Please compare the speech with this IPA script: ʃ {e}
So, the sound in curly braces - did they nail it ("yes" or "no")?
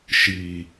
no